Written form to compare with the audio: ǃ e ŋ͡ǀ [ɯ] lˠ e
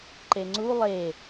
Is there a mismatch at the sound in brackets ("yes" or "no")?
yes